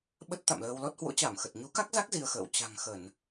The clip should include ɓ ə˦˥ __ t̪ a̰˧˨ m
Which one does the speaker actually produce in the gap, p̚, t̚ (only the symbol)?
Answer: t̚